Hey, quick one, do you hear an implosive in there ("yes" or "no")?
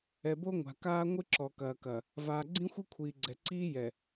no